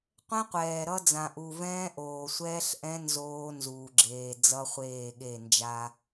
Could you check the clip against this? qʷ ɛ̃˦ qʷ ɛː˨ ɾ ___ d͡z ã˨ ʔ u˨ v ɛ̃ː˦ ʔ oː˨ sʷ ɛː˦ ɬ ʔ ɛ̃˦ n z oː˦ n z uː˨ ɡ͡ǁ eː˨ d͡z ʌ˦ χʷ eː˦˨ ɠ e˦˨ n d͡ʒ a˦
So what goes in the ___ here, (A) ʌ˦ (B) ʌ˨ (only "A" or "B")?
A